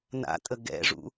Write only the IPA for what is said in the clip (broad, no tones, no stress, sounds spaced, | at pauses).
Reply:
n a̰ tʼ ə ɡ ɛ̰ ʐ ṵ